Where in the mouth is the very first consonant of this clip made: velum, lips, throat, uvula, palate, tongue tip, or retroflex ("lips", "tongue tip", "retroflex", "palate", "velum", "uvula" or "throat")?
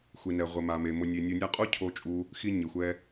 velum